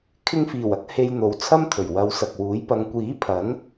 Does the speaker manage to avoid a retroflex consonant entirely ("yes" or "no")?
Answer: yes